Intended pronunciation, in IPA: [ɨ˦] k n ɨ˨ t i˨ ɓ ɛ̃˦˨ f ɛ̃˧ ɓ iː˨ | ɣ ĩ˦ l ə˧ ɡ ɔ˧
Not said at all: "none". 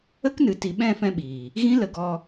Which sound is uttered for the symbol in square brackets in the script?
ə˦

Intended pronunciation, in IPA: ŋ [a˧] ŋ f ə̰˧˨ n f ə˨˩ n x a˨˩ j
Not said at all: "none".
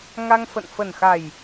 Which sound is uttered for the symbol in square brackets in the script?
a˧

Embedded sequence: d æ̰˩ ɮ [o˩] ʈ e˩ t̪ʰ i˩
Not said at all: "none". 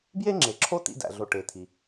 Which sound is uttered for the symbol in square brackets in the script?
o˩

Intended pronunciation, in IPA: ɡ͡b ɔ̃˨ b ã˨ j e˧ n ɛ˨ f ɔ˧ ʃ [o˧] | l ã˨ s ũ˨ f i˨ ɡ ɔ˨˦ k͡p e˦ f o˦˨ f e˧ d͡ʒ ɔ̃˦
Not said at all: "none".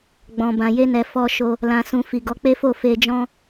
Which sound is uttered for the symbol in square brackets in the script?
o˧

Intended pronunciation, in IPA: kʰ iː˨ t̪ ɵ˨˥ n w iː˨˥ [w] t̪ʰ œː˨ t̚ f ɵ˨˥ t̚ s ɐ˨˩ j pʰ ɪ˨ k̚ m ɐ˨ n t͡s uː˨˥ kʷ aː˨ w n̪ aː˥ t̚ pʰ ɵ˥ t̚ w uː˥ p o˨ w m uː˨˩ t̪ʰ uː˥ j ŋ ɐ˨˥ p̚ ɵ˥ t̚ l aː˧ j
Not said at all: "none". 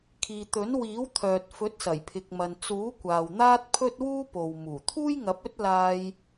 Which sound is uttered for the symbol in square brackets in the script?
w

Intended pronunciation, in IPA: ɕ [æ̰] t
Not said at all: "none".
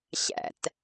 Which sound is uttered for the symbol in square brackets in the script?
æ̰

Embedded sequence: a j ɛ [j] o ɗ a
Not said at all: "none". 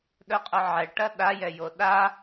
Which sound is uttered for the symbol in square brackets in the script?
j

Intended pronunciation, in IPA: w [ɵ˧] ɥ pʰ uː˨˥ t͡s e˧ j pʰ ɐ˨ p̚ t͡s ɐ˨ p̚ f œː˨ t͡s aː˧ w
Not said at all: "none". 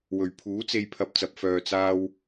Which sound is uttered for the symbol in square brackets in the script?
ɵ˨˩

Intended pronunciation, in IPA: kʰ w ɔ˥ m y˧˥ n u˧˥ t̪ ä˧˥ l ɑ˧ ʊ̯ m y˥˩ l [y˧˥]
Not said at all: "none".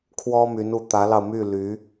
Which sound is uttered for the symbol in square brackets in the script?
y˧˥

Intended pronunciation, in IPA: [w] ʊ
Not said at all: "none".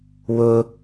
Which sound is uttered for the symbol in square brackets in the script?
w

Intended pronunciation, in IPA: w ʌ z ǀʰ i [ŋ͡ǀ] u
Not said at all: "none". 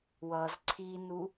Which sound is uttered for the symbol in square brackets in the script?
n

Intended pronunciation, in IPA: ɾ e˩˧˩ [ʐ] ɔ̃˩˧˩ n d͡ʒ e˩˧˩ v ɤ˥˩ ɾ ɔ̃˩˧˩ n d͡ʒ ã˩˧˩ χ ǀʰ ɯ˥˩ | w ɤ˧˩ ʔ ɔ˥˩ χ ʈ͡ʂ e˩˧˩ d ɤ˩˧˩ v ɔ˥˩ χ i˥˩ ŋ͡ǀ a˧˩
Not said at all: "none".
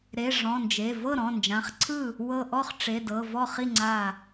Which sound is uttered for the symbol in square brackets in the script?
ʐ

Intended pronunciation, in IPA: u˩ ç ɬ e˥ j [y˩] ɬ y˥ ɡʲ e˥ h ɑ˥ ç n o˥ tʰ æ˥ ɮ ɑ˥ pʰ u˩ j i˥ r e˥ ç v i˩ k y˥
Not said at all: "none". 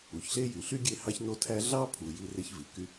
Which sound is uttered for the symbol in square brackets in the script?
y˩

